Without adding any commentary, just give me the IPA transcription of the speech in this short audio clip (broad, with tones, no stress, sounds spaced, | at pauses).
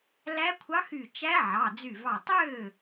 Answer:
l æ˧˥ kʷʰ ɑ˧˥ x y˧˩ t͡ʃ æ˧˥ ʕ ɑ˩˧˩ d͡z y˧˩ v ɑ˧˩ tˤ ø˥˩